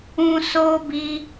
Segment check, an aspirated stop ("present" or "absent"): absent